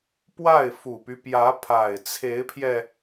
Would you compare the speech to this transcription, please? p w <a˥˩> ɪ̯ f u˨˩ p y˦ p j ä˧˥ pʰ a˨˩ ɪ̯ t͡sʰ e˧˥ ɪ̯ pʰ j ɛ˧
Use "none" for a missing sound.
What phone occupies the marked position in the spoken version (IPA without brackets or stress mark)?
a˥˩